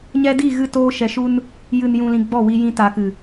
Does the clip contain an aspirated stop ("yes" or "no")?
no